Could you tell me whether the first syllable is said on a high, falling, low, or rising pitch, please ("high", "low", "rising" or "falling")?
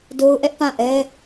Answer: high